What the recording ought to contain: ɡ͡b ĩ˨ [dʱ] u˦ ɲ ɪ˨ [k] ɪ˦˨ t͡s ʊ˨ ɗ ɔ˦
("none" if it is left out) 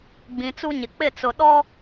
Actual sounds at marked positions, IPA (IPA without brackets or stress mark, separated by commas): t͡s, k͡p